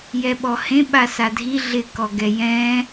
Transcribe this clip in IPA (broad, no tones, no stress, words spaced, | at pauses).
jɛɓɔhẽ ɓasadʱi ɮɪkɔɡɛ jɛ̃